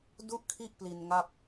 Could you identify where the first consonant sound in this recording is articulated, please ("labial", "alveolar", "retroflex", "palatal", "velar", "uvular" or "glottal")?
alveolar